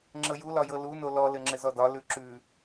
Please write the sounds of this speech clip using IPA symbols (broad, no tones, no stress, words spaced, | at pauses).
ŋ͡ǁɤjulɒjɤ luno lɔ lɘŋ͡ǁɘzɔdɒ lʉǁʉ